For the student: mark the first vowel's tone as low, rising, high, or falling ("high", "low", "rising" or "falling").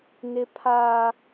high